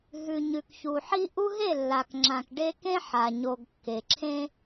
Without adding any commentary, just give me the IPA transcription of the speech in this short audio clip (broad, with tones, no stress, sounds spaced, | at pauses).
ɦ ʉ˨ ɲ ʉ˨ k ç u˨ ħ i˦ ʔ u˦ ɦ e˦˨ lː a˨ k ŋ͡ǁ ã˨ k ɖ e˦ k ẽ˦ ħ a˨ ɲ o˨ ɡ kː e˨ ǁʰ ẽ˦